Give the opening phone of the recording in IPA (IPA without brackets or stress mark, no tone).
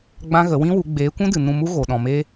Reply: ɡ͡b